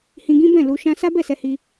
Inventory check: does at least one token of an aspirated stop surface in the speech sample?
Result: no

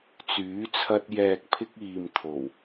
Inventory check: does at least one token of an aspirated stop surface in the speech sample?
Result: yes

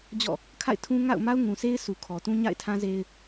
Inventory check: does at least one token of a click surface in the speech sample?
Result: no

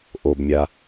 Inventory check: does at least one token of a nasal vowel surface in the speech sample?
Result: no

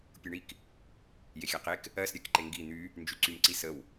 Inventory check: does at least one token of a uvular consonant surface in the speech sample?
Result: yes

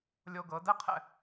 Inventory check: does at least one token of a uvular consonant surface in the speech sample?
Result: yes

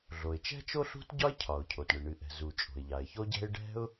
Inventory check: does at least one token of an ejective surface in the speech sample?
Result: yes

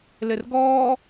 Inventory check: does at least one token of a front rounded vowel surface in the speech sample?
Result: no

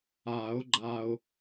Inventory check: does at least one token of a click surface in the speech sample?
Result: yes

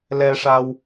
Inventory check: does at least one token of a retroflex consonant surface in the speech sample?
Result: yes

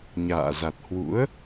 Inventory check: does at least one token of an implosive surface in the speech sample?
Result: no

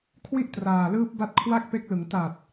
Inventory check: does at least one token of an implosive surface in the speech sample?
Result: no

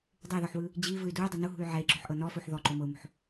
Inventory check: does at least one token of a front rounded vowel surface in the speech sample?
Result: yes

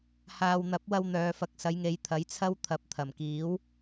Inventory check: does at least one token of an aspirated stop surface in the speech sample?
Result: yes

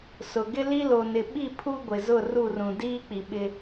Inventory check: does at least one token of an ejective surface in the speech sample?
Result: no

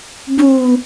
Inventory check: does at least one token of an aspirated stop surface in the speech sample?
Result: no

